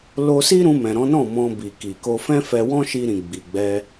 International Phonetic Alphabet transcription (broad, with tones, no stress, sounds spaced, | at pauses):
l o˦ s i˦ ɾ ũ˧ m ɛ̃˨ ɾ ɔ̃˨˦ n ɔ̃˦˨ m ɔ̃˧ b i˨ k i˨ k o˧ f ɛ̃˦ f ɛ˧ w ɔ̃˦ ʃ i˧ ɾ ĩ˨ ɡ͡b i˨ ɡ͡b ɛ˧